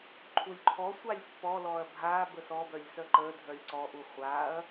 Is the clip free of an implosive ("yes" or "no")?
yes